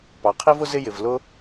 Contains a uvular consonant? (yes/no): yes